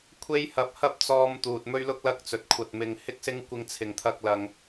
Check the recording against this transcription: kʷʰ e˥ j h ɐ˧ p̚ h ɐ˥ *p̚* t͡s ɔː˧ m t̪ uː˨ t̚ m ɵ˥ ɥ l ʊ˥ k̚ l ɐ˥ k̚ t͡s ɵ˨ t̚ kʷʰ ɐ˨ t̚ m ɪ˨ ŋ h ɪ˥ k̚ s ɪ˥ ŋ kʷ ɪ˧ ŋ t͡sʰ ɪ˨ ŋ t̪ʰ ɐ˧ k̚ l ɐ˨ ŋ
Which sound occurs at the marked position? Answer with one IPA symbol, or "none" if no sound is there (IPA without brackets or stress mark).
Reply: p̚